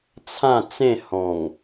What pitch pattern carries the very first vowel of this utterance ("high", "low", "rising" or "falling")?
falling